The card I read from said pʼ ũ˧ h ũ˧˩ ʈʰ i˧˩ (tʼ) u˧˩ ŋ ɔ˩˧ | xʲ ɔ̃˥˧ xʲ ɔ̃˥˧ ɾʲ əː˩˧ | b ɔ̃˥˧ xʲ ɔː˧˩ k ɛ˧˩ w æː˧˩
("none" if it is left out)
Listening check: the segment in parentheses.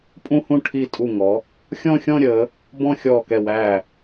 tʼ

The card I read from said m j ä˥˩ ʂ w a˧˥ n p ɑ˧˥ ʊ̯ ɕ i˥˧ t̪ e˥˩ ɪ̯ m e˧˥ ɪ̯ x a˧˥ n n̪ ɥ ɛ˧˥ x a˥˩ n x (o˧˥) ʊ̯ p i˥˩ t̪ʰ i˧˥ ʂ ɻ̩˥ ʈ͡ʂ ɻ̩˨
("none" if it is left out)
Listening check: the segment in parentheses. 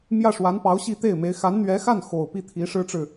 o˨˩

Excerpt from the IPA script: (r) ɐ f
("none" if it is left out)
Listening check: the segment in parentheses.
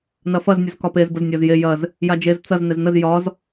n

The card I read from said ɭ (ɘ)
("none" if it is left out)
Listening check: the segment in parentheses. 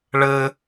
ɘ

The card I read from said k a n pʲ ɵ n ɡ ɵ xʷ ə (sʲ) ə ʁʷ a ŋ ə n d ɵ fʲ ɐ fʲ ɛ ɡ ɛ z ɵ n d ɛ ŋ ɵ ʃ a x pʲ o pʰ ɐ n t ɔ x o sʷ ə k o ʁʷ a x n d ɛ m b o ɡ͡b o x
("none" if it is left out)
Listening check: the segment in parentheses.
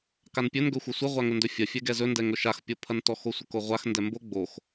sʷ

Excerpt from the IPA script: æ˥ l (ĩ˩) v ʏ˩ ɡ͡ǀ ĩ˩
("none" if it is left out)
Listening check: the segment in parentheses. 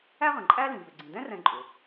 ĩ˩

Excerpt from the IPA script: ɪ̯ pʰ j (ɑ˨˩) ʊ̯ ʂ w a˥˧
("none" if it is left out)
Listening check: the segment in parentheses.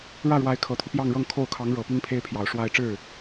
ɑ˨˩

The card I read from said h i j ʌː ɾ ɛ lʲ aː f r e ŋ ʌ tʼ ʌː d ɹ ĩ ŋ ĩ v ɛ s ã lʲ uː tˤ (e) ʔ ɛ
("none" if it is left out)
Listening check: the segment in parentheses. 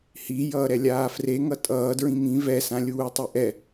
e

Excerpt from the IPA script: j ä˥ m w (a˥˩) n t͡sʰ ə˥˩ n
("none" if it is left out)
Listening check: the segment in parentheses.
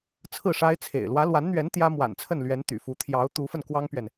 a̰˨˩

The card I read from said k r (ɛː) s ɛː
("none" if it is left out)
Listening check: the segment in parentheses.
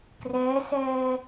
ɛː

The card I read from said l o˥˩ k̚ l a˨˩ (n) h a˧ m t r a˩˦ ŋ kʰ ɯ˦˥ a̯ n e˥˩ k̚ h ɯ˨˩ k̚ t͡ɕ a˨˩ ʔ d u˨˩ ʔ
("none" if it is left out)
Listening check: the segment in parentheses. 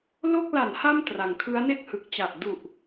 n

